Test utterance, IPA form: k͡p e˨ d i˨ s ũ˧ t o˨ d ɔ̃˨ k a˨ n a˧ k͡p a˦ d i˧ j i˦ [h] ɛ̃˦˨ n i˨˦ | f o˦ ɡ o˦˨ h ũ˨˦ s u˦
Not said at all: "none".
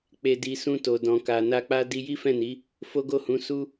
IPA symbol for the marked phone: f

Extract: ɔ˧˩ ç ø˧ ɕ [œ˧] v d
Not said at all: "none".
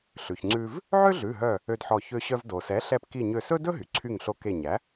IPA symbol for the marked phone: œ˧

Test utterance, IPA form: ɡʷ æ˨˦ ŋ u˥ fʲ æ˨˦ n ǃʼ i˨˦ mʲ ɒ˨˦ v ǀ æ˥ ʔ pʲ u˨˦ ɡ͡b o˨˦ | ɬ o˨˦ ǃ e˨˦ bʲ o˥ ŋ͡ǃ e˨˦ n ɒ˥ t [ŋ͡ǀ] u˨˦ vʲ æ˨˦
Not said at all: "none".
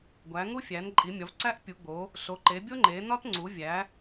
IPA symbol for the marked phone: ŋ͡ǀ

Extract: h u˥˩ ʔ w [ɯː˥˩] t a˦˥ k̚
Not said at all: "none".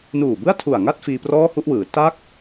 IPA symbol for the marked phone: ɯː˩˦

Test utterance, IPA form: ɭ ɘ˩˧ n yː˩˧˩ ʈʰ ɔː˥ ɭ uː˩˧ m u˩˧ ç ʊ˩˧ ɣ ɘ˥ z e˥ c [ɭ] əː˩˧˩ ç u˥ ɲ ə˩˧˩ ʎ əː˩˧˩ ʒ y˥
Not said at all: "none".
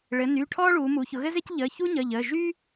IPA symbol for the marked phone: ʎ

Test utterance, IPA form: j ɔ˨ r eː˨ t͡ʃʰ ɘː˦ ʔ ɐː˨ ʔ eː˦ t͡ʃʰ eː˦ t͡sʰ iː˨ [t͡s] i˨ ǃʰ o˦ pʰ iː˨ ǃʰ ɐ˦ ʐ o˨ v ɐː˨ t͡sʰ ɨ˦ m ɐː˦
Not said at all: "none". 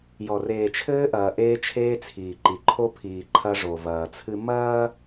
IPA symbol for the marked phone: ǃ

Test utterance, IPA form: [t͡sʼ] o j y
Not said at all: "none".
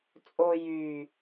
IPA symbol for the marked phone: t͡sʼ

